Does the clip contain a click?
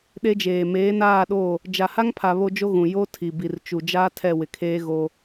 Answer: no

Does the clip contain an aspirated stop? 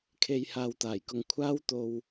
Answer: yes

